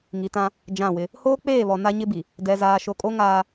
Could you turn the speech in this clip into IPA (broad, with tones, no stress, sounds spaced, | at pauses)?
ŋ i˨ t ã˦ | d͡ʒ ã˦˨ w ɪ˦ | h oː˦ k͡p eː˦˨ β ɔ˨ n a˦ ɲ ɪ˦ b i˨ | d ɛ˨ z aː˨ ʃ o˨ kʼ o˦ ŋ aː˦